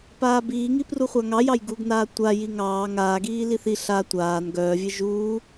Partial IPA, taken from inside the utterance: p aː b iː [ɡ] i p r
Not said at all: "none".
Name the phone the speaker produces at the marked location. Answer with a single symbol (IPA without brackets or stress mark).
ŋ